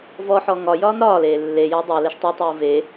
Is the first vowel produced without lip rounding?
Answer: no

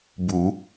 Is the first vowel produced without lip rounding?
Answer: no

